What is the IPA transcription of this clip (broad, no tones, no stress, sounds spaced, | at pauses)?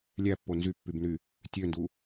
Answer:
lʲ æ pː o n z y pː y b n y | tʲ ø n d u